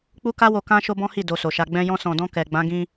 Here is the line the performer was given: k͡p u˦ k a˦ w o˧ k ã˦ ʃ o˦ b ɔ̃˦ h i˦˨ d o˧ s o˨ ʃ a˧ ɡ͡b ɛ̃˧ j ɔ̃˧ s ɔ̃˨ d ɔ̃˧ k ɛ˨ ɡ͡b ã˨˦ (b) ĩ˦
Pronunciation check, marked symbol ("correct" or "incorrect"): incorrect